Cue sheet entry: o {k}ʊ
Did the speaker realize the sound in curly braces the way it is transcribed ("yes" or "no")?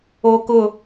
yes